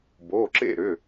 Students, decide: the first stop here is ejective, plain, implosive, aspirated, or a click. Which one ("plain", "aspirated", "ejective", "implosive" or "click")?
plain